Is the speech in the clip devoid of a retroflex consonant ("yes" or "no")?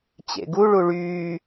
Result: no